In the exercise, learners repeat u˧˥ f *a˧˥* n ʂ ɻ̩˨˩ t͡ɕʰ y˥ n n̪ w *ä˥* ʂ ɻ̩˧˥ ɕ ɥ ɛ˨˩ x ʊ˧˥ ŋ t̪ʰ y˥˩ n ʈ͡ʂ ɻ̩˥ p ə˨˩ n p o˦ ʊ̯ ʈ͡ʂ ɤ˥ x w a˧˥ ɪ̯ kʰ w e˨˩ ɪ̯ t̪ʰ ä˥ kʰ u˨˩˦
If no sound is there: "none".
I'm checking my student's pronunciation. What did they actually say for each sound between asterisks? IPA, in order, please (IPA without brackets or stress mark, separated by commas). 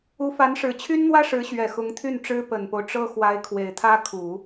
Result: a˧˥, ä˥